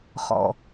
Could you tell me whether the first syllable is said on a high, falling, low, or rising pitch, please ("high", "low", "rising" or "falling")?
low